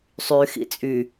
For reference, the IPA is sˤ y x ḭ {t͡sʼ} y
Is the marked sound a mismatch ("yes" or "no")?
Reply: no